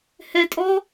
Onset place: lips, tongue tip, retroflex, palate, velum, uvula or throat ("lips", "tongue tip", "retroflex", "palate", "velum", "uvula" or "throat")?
throat